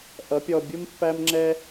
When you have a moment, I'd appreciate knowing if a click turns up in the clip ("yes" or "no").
yes